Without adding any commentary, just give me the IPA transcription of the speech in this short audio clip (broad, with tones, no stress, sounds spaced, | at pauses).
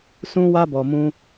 s ũ˦ w a˦ b ɔ˨ m ũ˧